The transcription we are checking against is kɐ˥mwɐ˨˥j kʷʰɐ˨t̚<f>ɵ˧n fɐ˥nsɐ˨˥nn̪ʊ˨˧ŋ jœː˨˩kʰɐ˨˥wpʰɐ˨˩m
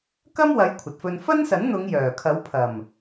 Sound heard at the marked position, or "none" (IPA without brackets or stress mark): f